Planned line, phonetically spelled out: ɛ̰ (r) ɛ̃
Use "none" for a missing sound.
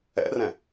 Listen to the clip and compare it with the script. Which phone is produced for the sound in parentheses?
r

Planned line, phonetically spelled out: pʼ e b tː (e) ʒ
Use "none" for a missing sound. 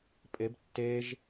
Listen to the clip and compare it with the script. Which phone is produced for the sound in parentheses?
e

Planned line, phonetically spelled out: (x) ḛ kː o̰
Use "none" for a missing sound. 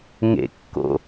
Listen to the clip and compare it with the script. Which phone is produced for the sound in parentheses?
ŋ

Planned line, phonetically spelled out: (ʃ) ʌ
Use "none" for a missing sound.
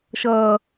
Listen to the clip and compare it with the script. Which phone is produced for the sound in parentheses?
ʃ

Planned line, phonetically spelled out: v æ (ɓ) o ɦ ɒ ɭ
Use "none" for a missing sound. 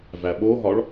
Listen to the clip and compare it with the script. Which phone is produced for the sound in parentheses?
ɓ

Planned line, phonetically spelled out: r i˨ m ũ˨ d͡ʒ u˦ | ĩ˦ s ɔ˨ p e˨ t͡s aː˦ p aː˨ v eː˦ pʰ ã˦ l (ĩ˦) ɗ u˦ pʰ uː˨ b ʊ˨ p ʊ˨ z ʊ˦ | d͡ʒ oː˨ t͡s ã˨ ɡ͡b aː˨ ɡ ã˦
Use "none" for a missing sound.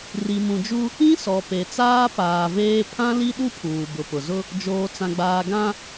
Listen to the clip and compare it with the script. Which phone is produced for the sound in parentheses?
i˦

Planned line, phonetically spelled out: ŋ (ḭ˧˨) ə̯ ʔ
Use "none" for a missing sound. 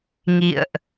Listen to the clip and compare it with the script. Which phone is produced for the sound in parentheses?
ḭ˧˨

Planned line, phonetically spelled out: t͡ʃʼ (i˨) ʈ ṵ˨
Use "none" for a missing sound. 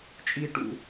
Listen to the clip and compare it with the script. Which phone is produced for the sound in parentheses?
i˨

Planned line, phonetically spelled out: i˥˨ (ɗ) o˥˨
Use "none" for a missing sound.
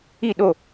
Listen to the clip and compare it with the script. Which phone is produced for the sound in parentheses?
ɗ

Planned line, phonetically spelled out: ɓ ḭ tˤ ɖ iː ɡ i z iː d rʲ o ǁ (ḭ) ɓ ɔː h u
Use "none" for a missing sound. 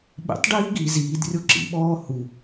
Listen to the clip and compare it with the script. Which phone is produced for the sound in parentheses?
ḭ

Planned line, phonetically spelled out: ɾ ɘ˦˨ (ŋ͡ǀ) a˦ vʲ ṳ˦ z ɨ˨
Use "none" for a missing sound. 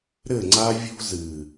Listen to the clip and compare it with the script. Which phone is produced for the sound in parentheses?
ŋ͡ǀ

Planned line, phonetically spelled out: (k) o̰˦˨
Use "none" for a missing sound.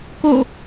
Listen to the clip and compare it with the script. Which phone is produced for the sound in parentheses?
k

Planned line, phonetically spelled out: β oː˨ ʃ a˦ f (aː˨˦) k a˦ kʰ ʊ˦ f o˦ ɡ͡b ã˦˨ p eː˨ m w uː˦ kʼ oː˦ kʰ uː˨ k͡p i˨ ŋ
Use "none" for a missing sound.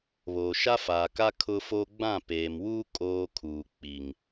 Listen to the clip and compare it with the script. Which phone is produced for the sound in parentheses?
aː˨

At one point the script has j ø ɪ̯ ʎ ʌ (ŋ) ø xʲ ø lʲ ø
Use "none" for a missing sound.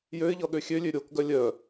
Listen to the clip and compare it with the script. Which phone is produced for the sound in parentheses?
ɠ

